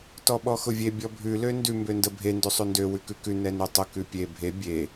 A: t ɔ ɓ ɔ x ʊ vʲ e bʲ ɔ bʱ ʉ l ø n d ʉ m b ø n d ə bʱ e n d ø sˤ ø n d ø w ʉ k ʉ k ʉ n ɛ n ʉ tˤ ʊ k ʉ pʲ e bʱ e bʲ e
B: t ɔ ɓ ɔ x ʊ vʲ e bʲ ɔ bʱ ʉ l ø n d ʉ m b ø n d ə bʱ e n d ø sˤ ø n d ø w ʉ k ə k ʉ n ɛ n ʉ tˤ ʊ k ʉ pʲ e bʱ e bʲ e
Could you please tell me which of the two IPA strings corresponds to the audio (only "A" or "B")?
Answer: A